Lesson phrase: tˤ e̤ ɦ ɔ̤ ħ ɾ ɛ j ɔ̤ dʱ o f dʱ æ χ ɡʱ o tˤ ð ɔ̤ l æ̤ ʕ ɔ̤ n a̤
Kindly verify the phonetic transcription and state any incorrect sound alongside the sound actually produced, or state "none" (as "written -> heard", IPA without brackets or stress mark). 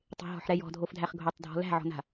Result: ð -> dʱ